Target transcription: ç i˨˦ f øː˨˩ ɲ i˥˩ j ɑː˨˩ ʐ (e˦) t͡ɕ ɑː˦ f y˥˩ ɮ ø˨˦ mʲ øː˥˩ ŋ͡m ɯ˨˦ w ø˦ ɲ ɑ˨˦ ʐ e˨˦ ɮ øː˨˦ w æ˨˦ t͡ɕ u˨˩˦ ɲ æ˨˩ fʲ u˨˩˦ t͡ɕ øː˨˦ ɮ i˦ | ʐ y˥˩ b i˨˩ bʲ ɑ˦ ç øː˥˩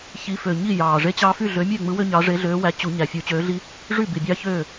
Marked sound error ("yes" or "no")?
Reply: no